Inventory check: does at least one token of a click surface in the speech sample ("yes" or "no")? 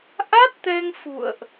no